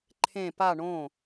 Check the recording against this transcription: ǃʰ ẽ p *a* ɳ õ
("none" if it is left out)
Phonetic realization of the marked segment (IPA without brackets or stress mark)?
a